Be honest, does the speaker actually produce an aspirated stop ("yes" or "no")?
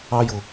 no